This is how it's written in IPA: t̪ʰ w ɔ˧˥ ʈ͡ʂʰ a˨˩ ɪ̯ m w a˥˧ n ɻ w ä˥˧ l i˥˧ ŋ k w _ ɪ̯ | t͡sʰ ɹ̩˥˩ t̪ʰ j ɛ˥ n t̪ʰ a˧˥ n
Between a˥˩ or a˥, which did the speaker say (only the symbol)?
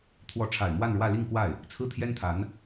a˥˩